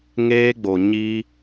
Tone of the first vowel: high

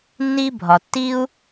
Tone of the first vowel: high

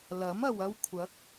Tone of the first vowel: rising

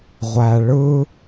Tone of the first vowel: low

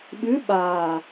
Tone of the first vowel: rising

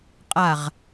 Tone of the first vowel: falling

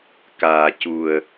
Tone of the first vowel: low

